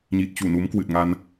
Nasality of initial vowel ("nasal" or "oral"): oral